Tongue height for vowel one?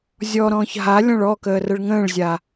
mid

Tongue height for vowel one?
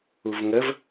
high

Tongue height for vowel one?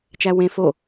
low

